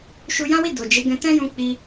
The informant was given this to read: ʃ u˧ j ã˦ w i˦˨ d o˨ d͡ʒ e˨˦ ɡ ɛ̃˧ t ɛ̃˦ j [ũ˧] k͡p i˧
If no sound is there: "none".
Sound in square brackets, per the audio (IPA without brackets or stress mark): ũ˧